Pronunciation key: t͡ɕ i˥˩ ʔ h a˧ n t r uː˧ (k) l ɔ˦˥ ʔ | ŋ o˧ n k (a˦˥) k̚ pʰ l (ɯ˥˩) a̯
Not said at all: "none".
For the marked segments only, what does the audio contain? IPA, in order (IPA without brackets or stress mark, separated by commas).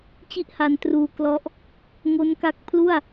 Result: k, a˦˥, u˥˩